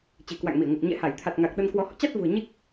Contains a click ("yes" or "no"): no